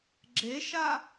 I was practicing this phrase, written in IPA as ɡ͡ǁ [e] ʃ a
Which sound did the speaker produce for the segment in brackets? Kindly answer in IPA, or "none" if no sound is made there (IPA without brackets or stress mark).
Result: e